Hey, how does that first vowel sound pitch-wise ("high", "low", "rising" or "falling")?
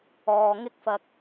low